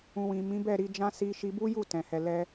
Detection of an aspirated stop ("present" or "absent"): absent